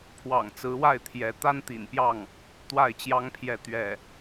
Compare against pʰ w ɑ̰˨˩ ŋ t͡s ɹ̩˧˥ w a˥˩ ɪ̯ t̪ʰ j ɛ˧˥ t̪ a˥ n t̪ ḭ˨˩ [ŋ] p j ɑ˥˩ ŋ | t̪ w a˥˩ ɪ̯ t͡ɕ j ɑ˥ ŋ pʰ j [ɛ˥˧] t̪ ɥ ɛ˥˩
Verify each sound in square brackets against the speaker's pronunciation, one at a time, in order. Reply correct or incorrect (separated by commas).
incorrect, correct